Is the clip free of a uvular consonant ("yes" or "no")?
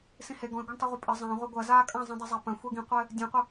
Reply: no